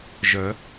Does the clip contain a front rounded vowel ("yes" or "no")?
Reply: yes